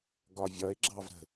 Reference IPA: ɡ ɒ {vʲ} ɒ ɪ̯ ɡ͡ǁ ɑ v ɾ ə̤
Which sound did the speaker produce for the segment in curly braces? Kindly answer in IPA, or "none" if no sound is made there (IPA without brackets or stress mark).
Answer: vʲ